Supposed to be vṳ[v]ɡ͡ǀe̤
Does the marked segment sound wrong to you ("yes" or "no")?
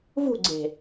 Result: yes